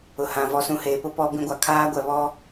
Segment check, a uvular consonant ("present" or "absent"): absent